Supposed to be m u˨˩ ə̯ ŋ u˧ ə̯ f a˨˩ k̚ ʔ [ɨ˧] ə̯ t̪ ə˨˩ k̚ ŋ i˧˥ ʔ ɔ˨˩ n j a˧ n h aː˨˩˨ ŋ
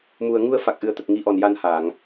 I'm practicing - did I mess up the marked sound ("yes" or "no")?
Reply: yes